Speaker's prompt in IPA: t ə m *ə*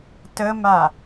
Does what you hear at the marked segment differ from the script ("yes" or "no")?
yes